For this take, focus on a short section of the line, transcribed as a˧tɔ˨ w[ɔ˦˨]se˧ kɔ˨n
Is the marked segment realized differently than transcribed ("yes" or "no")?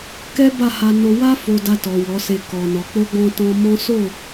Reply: yes